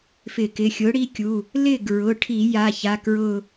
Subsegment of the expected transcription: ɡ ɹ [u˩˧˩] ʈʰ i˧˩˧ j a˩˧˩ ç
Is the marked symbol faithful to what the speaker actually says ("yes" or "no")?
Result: no